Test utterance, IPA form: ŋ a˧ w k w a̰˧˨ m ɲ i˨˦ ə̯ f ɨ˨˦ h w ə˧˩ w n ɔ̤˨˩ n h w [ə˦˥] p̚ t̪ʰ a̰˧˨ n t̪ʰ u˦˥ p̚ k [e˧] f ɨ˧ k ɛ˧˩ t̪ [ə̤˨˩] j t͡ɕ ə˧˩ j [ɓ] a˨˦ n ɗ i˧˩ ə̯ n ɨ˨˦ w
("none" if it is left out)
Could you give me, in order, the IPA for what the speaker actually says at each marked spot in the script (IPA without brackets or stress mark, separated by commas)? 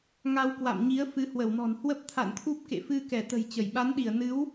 ə˦˥, ḛ˧˨, ə̤˨˩, ɓ